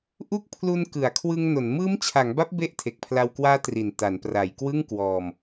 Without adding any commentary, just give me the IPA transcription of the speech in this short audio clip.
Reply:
ʔ u˦˥ k̚ pʰ l u˧ n k ɯ˩˦ a̯ kʰ w ɯ˧ ŋ n o˩˦ n m ɯː˦˥ m t͡ɕʰ a˩˦ ŋ b a˦˥ p̚ b e˥˩ ʔ tʰ e˨˩ k̚ pʰ l a˧ w k w aː˦˥ t r i˨˩ n t a˩˦ n p r a˩˦ j k w ɯ˥˩ ŋ k w ɔː˧ m

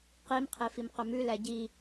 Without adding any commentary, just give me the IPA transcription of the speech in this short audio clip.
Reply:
q i m qʰ e f i m q ɵ m ʉ l æ ɟ i

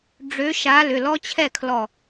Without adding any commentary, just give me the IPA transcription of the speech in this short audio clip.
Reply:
ɖ͡ʐ ø˧˥ ʃ a˧˥ l ʏ˩˧˩ l ɔ˥ t͡ɕʰ ɛ˥˨ kʰ l ɔ˧˩

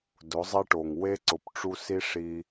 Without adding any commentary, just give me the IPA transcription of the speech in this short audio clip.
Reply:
d ʊ˨˦ zˤ ɛ˦ ʈ o˨ ŋ w e˦ ǀ ʊ˨ p ʈ͡ʂ u˦ s i˦ ʂ i˦

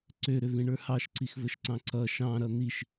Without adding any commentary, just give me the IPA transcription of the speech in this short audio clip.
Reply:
ǀ ø ɾ ø v ĩ ɳ ə˞ h ɑ ʃ ǀ i x v ə ʃ ǀ ɑ̃ ǀ ʌ ʃ ɑ̃ ɾ ʌ n̪ i ʃ

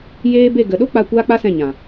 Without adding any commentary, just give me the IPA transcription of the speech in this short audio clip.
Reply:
j eː˦ b e˦˨ ɡ ə˨ ɗ o˦ k͡p a˦˨ kʷ aː˦ k͡p a˦ s ɛ̃˦˨ ɲ ã˨

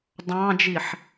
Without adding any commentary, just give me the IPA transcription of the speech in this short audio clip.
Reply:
dˤ ɑ̃ d͡ʒ i ħ

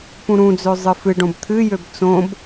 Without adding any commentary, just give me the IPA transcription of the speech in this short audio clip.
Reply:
p ũ ɾ ũ d͡z ø zˤ ɨ f ɨ ɖ õ b t̪ʰ ɨ j ø b t͡s õ b

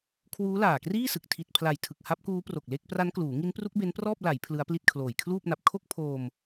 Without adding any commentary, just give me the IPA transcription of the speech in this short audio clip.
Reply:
kʰ w uː˦˥ l aː˨˩ k r iː˥˩ s ɯ˨˩ k̚ tʰ i˨˩ t̚ pʰ l a˨˩ j tʰ ɯ˨˩ k̚ h a˦˥ p̚ k uː˦˥ p r o˨˩ k̚ l e˥˩ k̚ p r a˦˥ n k l uː˩˦ ŋ i˦˥ n p r u˦˥ k̚ b e˦˥ n p r ɔː˥˩ p̚ l a˩˦ j pʰ l ɯ˦˥ a̯ p l i˥˩ t̚ kʰ l oː˨˩ j kʰ l uː˥˩ p̚ n a˨˩ p̚ kʰ o˥˩ k̚ pʰ oː˧ m

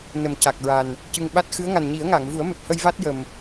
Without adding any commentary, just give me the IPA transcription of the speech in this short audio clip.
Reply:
n ə˨˩ m c a˨˩ k̚ ɹ a˨˩ n | c ɨ˧ ŋ ɓ a˦˥ t̚ x ɨ˧˥ ə̯ ŋ a˨˩ n ɲ i˨˩˦ ə̯ ŋ aː˨˩˨ ŋ v u˨˩˦ ə̯ m ɛ˨˩ p̚ h ə˧ j v a˦˥ t̚ j ə˨˩ m

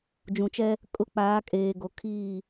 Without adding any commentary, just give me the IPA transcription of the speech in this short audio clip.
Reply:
d͡ʒ ũ˨ t͡ʃ ɛ˦ | kʼ ʊ˦ k͡p aː˨˦ kʼ eː˨ ɡ o˨ kʰ iː˦˨

